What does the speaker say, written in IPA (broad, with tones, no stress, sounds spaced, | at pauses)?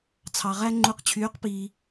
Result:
t͡sʰ ɑ˧ ʁ æ˥ ŋ͡ǃ u˧˥ q t͡ɕʰ yː˧˥ q p iː˧